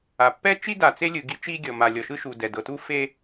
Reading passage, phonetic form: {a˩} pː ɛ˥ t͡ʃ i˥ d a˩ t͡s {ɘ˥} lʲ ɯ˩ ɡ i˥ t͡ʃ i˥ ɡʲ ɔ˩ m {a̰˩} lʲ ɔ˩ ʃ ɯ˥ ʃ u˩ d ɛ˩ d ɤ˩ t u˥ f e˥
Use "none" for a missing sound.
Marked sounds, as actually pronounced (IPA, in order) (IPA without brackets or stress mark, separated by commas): a˩, e˥, a˩